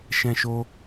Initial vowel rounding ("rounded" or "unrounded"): unrounded